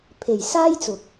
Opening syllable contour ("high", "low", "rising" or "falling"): low